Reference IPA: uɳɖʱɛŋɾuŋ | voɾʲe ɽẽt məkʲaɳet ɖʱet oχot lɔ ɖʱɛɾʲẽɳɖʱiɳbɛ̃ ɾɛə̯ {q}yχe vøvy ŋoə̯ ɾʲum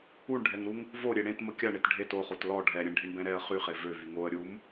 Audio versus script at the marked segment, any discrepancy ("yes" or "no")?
yes